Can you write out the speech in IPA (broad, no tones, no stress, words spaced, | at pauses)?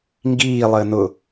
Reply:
ŋɡiːlˠəː nʊ